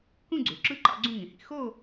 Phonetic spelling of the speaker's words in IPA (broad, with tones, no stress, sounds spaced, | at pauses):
k ũ˥˧ ɡ͡ǀ ø˩˧ ǁ ɯ˥˧ ǃ ɑ̰˥˧ ɡ͡ǀ ũ˥˧ ŋ ĩ˩˧ h ḭ˥˧ x o˥˧